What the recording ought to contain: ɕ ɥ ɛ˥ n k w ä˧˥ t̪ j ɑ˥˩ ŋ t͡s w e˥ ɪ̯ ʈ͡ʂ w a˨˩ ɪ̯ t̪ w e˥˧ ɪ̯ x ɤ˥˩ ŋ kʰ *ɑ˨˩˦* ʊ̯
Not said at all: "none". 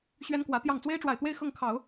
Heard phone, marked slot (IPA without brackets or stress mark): ɑ˨˩˦